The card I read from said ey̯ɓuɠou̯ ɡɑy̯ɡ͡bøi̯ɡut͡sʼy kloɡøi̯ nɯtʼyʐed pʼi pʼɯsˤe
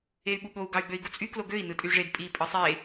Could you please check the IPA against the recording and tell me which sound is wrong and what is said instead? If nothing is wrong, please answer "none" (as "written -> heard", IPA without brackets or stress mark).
none